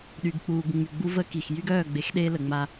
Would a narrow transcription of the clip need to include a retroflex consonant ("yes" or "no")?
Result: no